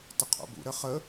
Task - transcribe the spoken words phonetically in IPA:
t ə qʰ o̰ b ṵ ɾ ə χ ə

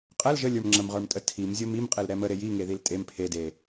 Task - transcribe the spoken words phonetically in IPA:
qʼ ɛ l ʒ ə lʲ ə˞ m ŋ͡ǁ ə m ʁ ə˞ m tʼ ə tʰ i m zʲ o m i m qʼ e l ɾ ɛ m ə ɾ e j i ŋ e ð i l tʼ e m pʰ e d e

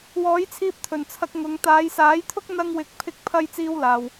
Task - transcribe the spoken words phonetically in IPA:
w ɔː˨˥ j t͡sʰ iː˧ p̚ t̪ʰ ɵ˨˩ n t͡sʰ ɐ˧ k̚ ŋ ʊ˨˧ ŋ t̪ aː˨˧ j s aː˨˥ j t̪ʰ ʊ˥ k̚ n̪ ɐ˧ ŋ w ɪ˨ k̚ pʰ ɪ˧ k̚ pʰ ɐ˧ j t͡s iː˥ w l aː˨ w

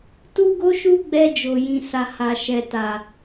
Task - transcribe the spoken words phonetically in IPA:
t u˦ ɡ o˦ ʃ u˦ ɡ͡b ɛ˧ d͡ʒ o˨ j ĩ˨ s a˨ h a˨ ʃ ɛ˨ t a˨

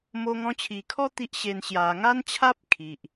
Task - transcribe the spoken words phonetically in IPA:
m o˧ ŋ ɔ̃˧ t͡ɕʰ i˨˩ kʰ ɔ˦ t̪ i˦ ʔ ɕ e˧ n ɕ j a˨˩ ŋ a˦ n t͡ɕʰ a˦ p̚ kʰ i˨ ʔ

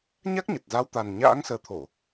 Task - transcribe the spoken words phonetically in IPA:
ɲ a˦˥ k̚ ɲ ə˨˩ t̚ z a˨˦ w t̪ a˨˩ n ɲ a̰ː˧˥ ŋ s əː˨˦ t̪ʰ o˧˩˨

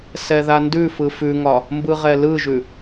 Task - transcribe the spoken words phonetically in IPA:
s ɛ ð a n d ʉ f ɯ f ʉ ŋ ɒ | m b ɯ ʁ ɛ l ɯ ʒ ʉ

